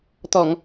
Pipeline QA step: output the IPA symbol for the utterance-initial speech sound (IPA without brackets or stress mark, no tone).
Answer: t̪